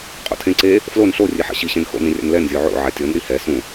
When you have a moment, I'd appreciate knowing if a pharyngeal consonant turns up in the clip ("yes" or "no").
yes